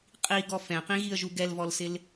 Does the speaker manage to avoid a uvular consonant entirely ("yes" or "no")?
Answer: no